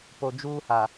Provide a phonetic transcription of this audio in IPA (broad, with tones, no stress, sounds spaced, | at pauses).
p o˨ d͡ʒ uː˦ h a˨